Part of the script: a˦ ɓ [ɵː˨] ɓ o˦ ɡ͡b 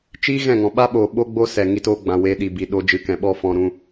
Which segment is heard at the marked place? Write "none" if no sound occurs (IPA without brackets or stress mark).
oː˨